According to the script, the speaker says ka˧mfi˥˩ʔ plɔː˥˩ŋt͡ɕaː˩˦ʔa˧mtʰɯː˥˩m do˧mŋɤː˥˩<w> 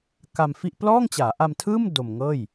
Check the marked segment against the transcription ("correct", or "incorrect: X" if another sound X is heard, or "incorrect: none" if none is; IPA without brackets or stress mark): incorrect: j